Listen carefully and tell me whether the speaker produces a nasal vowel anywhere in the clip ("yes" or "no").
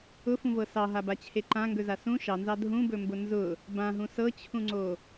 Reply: yes